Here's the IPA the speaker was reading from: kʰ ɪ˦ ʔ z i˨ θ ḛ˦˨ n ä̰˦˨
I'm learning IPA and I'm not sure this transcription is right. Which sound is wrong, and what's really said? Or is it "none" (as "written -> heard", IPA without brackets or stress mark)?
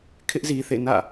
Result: none